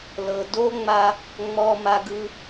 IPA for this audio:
l ɤ˩ d o˥ ŋ͡m a˧ | ŋ͡m ɔ˧ m a˧ ɡ ɯ˧

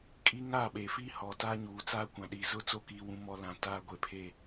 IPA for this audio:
kʼ i˦ ŋ a˦˨ ɓ e˨ f i˦ h ɔ˨ t aː˦ ɲ uː˨ t͡s aː˦ kʷ ã˨ ɗ iː˨ z ʊ˦ t͡s o˦˨ k iː˦ w ũ˦ m ɔ˦ l ã˨ t aː˦ ɡʷ e˨ pʰ e˦˨

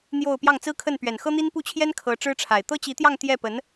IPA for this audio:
n̪ j o˥˧ ʊ̯ p j ɑ˥˩ ŋ t͡s ɹ̩˥ kʰ ə˥˩ n p ɥ ɛ˨˩ n x ɤ˥ n̪ i˥ n p u˥˩ t͡ɕʰ j ɛ˥ n kʰ ɤ˧˥ ʈ͡ʂ ɻ̩˥ ʈ͡ʂʰ a˨˩ ɪ̯ t̪ ɤ˥ t͡ɕ i˧˥ t̪ j ɑ˥˧ ŋ t̪ j ɛ˥˩ p ə˧˥ n

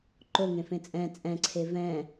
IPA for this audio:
ǃ o ŋ ẽ f ẽ t͡sʼ ɛ̃ t͡sʼ ɛ̃ ǀʰ e v ɛ̃

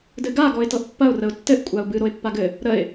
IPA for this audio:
d ɘ ɡ a ɡ ɔ ɪ̯ t ɤ ʔ pː ɐ ʊ̯ r ə ʊ̯ tː ɘ ʔ kʷʼ a ʊ̯ b ɨ ɾ o ɪ̯ pː a ɡ ɘ | ɾ ə ɪ̯

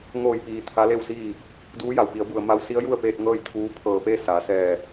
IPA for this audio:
ŋ oː˧˩ j p iː˩ t̪ʰ a˧˥ l e˥˨ w s iː˥˨ | d uː˧˥ j a˩ w p i˩˧ ə̯ b u˩ ə̯ m a˧ w s i˧˥ ə̯ j u˥˨ ə̯ p eː˧ t̚ ŋ ɤː˥˨ j t̪ʰ uː˧˥ pʰ ɤː˧˩ p e˥˨ s a˩˧ s ɛː˧˩

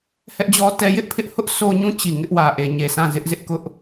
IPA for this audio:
h ɛ˦ ʔ d͡ʑ ɔ˦ t ɛ˦ j ɪ˦ ʔ pʰ ɪ˦ ʔ h ʊ˦ ʔ s o˦ ɲ ũ˦˨ t͡ɕ i˨ ŋ ɪ˦ ʔ w ä˨ ʔ e˨ ɲ e˨ s ã˦˨ z ɪ˦ ʔ z ɪ˦ ʔ k ʊ˦ ʔ

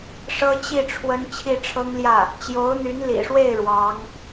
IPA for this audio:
ʂ ɤ˥ t͡ɕ i˥˩ ʈ͡ʂʰ w ə˥ n t͡ɕʰ i˥˩ ʈ͡ʂʰ ɤ˥ ŋ l j ä˥˩ | t͡ɕ j o˧˥ ʊ̯ n̪ y˧˥ n l ḭ˨˩ ʂ w e˥˩ ɪ̯ ɻ w ɑ˧˥ ŋ

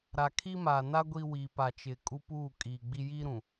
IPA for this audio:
ɾ a˨ kʰ i˦ m a˨ n a˦ ɡʷ i˦ w i˨ p a˨ t͡ʃ ɪ˨ kʼ u˦ p uː˦˨ kʼ iː˨ ɡ͡b i˦ j i˦ ɾ ũ˨

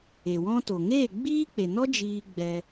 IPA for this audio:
e˨ w ɔ̃˦ t o˨ ŋ eː˦˨ ɡ͡b iː˦ k͡p e˨ n ɔ˦ d͡ʒ iː˧ ɡ͡b ɛ˧

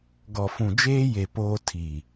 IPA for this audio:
ɡ ɔ˨ f ũ˨ d͡ʒ eː˦ j e˨ p oː˦ tʰ i˨

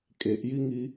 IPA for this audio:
kʼ e ʔ j i ŋ i

